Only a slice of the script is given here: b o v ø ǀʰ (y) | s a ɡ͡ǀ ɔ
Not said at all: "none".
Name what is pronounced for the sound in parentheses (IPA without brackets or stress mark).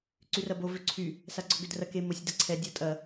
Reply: y